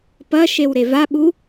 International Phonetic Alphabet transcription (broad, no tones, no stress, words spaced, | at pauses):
pɐ ʃewɾevaɓu